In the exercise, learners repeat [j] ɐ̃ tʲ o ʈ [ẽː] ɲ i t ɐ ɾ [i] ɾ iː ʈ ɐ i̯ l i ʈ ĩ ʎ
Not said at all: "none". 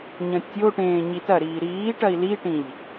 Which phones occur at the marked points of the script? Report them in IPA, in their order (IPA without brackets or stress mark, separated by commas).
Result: ɲ, ẽː, iː